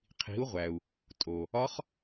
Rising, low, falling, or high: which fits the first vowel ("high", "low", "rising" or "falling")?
rising